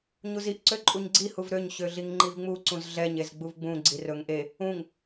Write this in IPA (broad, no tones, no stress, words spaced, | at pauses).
ɲuziʔ ǀøǃʼuɲɡ͡ǀi huvɾøɲ ɕøɮiŋŋ͡ǃivŋ͡mu ǀũzɮɛɲ ezɡ͡buvɡ͡bũ ɡ͡ǀirɵŋ ʔe | ũŋ